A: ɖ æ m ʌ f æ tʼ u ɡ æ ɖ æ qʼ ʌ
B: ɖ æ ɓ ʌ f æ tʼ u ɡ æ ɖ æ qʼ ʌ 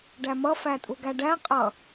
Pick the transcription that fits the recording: A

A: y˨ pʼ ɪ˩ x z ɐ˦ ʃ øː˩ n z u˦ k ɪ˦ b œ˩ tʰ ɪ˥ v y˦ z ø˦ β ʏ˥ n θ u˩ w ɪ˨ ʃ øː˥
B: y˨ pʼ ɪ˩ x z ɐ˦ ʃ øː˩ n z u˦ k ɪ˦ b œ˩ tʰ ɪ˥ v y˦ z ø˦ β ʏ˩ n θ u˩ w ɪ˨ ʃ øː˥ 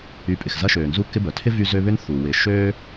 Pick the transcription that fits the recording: A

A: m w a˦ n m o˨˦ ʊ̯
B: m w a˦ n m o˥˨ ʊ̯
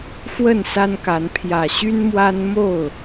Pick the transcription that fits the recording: B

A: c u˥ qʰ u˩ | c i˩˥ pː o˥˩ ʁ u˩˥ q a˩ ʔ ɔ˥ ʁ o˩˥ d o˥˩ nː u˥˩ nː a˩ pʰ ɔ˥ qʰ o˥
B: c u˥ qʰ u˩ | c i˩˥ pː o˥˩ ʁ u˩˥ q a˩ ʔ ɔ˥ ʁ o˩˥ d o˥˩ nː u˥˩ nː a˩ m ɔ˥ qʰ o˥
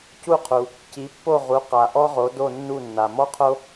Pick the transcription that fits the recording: B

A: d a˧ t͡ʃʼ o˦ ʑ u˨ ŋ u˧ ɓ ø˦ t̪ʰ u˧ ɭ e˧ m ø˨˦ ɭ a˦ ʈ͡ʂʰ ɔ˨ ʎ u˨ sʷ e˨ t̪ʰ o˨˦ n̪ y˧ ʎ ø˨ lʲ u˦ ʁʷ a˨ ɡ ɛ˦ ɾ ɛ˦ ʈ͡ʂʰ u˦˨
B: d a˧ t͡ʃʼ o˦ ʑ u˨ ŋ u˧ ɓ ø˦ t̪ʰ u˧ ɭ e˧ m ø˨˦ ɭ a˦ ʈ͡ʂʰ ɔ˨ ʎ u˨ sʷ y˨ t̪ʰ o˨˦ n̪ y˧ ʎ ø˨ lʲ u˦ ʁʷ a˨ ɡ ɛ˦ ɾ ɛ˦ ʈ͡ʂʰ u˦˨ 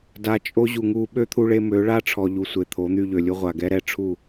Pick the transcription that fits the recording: A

